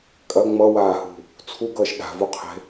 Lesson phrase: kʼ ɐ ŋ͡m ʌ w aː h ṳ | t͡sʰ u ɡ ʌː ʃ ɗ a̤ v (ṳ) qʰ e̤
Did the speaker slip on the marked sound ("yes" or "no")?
yes